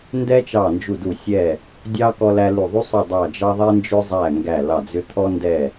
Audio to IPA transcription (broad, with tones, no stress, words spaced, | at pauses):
ndɛ˧ t͡ʃɑ˧˩nd͡ʒu˧˩du˧˩ sʲɛ˧˩ | dʲɑ˧ kɔ˧læ˧lu˧˩ ðˤu˧sˤʏ˧˩ dˤɑ˧˩d͡ʒɑ˧ ðˤɛ˧nd͡ʒʏ˧zˤæ˧˩ ŋɡæ˧˩lɑ˧˩d͡zʏ˧ t̪ʰɔ˧ndɛ˧˩